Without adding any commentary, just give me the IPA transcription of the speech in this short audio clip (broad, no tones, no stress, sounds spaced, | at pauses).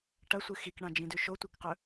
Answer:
ʈ ɐ sʷ ɨ x i k ɳ ã d͡ʒ ĩ d ʉ ʃ o tʷ i k q ɵ